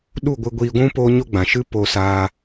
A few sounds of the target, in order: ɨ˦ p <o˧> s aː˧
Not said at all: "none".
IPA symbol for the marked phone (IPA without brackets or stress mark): o˧